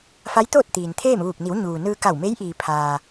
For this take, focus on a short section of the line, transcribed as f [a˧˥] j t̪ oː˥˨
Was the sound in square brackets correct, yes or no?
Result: yes